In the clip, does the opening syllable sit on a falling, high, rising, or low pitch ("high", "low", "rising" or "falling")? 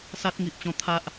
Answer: high